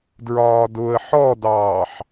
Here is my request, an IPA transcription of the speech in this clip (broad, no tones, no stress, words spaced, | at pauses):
dɹɒːdʊə̯ ħɔdɑːħ